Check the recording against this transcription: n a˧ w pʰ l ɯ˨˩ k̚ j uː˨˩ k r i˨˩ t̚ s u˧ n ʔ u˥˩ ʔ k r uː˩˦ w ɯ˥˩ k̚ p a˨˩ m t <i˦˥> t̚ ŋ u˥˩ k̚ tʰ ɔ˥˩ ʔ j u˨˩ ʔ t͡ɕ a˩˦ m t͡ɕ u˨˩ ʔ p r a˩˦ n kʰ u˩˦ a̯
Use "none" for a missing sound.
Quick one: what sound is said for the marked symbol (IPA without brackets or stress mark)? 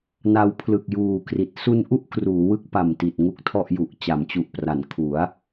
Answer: i˨˩